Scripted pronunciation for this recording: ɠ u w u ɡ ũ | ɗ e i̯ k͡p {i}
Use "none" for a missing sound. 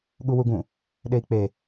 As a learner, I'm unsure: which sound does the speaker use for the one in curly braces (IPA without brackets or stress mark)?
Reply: e